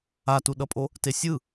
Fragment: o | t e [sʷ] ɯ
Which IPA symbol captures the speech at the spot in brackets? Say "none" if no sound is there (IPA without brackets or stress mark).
sʲ